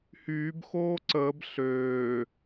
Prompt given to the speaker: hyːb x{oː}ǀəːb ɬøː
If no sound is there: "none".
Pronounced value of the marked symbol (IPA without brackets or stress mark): oː